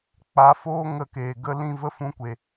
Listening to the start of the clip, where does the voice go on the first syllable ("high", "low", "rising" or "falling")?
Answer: rising